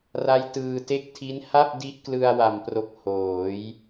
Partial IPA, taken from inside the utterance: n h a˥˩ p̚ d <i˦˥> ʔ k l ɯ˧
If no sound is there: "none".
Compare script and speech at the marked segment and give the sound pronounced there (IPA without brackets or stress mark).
i˦˥